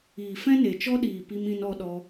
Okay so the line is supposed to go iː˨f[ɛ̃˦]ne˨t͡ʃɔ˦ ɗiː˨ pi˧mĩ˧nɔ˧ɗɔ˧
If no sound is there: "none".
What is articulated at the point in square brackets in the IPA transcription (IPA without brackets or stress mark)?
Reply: ɛ̃˦